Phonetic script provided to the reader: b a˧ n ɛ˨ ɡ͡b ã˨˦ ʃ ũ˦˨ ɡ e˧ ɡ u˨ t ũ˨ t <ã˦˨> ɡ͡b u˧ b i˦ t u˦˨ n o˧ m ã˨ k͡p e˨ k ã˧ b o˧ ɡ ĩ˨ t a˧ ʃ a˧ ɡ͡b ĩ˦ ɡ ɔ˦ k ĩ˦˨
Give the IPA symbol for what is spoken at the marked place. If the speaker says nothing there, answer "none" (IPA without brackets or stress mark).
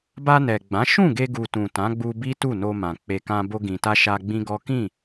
ã˨˦